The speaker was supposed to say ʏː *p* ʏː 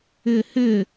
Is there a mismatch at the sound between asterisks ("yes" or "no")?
yes